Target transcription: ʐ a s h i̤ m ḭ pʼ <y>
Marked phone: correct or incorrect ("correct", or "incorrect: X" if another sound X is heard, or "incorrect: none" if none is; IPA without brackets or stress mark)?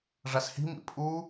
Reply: incorrect: u